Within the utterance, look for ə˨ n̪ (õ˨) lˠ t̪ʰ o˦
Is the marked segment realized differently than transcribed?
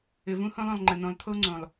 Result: no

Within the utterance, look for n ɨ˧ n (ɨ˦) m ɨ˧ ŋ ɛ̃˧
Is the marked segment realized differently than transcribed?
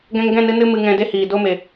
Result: no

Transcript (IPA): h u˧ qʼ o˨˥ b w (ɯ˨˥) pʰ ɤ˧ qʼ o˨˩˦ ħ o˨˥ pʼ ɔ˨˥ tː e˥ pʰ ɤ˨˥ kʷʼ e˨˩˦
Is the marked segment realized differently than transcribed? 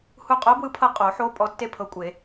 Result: no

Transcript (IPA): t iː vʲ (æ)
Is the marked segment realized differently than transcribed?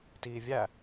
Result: no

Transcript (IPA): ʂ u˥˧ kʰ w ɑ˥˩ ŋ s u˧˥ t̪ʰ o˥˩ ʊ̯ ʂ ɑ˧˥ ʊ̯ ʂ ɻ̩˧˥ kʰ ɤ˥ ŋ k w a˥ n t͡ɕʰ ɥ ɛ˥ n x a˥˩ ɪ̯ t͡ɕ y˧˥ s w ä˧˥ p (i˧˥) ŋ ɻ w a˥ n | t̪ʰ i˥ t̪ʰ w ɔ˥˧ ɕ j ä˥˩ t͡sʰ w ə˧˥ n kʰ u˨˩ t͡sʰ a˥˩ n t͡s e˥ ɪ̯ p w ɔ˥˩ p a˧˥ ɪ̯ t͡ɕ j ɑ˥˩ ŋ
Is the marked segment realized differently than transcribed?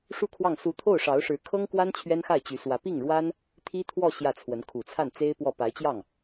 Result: yes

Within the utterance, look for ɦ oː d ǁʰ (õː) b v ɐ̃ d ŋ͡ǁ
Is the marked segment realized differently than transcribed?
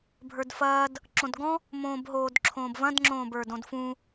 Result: no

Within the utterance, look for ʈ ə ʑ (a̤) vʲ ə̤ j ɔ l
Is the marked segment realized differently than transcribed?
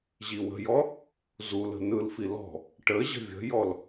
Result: yes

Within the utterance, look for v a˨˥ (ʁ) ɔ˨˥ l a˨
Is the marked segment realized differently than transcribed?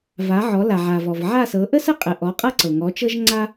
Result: yes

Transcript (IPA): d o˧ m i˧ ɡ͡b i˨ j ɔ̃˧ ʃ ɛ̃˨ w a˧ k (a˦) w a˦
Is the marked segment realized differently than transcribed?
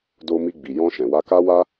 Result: no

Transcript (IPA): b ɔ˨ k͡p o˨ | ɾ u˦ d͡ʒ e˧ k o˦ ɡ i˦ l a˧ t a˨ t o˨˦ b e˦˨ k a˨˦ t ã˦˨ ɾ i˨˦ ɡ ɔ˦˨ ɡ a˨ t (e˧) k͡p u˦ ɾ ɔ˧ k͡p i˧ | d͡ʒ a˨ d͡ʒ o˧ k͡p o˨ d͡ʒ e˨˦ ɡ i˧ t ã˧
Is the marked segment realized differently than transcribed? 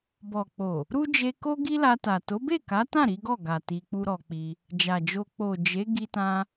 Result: yes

